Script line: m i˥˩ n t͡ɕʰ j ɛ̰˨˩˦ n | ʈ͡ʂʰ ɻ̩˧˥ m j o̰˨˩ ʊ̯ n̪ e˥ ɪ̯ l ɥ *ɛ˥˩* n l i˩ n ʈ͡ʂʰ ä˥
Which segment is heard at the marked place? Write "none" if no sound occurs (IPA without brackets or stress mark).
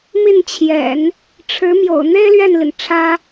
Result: ɛ˥˩